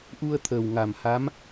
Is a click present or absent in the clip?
absent